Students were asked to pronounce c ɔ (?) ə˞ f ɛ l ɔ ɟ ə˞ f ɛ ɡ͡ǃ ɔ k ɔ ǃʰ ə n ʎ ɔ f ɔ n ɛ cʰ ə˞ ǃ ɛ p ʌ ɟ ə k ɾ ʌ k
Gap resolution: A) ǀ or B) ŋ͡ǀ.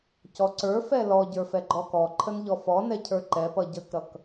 A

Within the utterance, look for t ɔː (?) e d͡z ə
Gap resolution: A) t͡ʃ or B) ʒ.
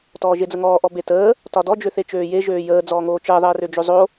B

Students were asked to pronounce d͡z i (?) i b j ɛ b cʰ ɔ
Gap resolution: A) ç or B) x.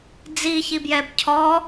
A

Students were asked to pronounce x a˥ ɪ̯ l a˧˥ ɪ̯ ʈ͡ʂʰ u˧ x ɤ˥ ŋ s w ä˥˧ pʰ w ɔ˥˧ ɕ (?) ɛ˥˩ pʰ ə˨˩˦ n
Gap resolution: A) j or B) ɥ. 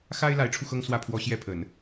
A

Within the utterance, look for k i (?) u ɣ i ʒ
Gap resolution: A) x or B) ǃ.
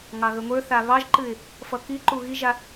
B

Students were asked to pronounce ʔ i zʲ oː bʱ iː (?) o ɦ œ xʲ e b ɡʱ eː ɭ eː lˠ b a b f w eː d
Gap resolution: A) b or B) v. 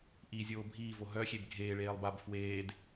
B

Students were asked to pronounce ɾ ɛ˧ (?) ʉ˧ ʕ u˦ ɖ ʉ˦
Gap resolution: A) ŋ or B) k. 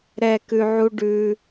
B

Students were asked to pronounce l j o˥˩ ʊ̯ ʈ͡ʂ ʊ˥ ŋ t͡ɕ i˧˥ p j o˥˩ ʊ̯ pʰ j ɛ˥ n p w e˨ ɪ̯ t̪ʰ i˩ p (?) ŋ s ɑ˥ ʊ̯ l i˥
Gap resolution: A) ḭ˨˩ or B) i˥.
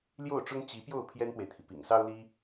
A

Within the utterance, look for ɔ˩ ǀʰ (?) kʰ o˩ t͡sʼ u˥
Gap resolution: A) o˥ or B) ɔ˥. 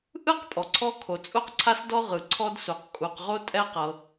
B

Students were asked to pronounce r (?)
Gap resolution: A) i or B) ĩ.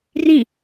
B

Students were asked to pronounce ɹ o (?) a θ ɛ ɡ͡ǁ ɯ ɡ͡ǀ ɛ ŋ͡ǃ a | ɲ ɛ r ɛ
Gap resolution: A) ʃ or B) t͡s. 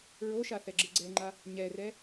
A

